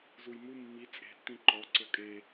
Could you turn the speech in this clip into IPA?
z u j m u mː i t͡sʼ e̤ tː ĩ ǃ ɔ ǀ ɤ kʼ e

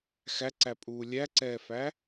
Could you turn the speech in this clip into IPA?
x æ ǀ æ pʼ uː lʲ æ ǀ ɛː f æ

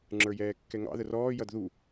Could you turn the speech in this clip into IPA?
ŋ͡ǁ ə˞ j ɛː kː ɛ ŋ ɑ̰ ð ə r ɔː j ʌ d ð u

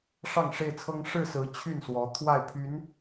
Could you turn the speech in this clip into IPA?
ʂ ɑ˥˨ ŋ ʂ e˥˨ ɪ̯ t͡sʰ ɤ˦ ŋ ʂ ɻ̩˥˨ s ɹ̩˨˦ t͡ɕʰ y˥˨ n s w ɔ˨˦ t̪ʰ w a˥˨ ɪ̯ pʰ y˨˦ n

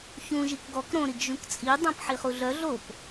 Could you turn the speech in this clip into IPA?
ç ũ ʒ i k ɡ ɔ k ɾ õ ɾ i ɡ ʒ ũ k t͡sʼ i dˤ õ p ħ i χ u ɮ œ ɮ o p

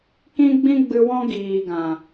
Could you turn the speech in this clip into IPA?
k ĩ˦ ɡ͡b ĩ˦ ɡ͡b ɨ˧ w ɔ̃˦ ɡ iː˨ ɡ ã˨

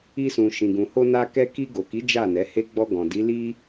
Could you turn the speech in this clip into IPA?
i˧ s ũ˨ ʃ ĩ˨ ɡ ũ˨ h o˧ n a˧ k ɛ˧ k i˧ ɡ o˨ k i˨˦ d͡ʒ a˦˨ n ɛ˨˦ h e˦ ɡ͡b ɔ˧ ɡ ɔ̃˨ d i˨˦ l i˧

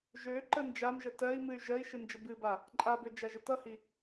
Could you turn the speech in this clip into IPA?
ʒ ø ǃ ə n d͡ʒ a m ʒ ə t ɜ i̯ m ɨ y̯ ʒ ɜ i̯ ʃ ɨ n d͡ʒ ə b ɨ b a | ǃʼ a b ø d͡ʒ a ʒ ə t ʌ h i

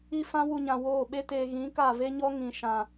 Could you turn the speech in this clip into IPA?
i˦ f ã˦ w u˧ ɲ ã˨ w oː˦˨ ɓ e˦ t eː˧ ɣ ĩ˨˦ k a˦˨ v e˦ ɲ ɔ˦ ŋ ĩ˨ ʃ ã˨

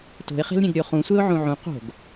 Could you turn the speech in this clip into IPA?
t o̤ ɪ̯ χ e̤ l ɾʲ ẽ ɡ ɾʲ o χ ũ sʷ e ʊ̯ ʕ ũ ʕ ũ q o̤ ɡ

